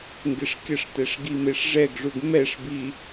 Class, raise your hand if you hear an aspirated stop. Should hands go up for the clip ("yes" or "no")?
no